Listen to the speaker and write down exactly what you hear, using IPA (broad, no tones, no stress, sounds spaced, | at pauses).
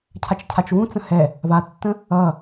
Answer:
cʰ a t͡ʃ cʰ a t͡ʃ w ũ t͡s ə̃ h ɛ | v a tː ə̃ | ʌ